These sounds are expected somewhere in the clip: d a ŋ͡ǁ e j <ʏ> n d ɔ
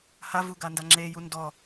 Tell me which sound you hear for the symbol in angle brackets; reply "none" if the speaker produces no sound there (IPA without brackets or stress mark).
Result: u